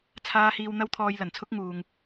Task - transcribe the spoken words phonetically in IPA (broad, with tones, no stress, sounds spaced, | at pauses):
t͡sʰ aː˧ h iː˧ w n̪ ɐ˥ w t̪ʰ ɔː˧ j l ɐ˨˩ n t͡sʰ ʊ˥ k̚ ŋ uː˨ ŋ